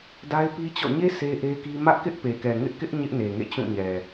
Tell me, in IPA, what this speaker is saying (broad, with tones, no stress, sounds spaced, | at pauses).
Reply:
d a˦ ɪ̯ p i˦ t͡ɕ ɔ̰˦˨ ɲ e˦ sʰ e˦ ʔ e˦ k i˦ m ä˦ ʔ k ɪ˦ ʔ p e˨ k ɛ˨ ŋ ɪ˦ ʔ k ɪ˦ ʔ ɲ ɪ˦ ʔ n e˨ ŋ ḛ˦˨ t͡ɕ ũ˦˨ ɲ ɛ˨